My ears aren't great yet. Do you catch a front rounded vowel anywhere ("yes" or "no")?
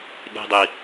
no